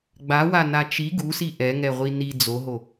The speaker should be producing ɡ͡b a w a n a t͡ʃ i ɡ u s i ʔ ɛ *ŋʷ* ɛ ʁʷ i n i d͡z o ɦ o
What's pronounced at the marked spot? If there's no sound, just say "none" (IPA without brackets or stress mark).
ŋ